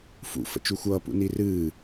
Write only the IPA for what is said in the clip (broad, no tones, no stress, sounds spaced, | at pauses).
f ṵ f ə̰ t͡ʃ u xʷ ʌː p ṵ n i r ɨː